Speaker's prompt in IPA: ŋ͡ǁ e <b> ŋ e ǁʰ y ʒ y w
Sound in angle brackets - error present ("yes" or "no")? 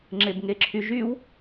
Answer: no